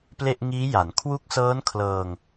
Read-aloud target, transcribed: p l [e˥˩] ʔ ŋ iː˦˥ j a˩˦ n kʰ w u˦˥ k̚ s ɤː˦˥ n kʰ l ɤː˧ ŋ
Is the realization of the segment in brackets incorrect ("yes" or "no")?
no